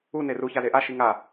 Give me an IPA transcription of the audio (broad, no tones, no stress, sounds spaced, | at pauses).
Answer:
u n e r u ç a z e ʔ a ʃ i ŋ a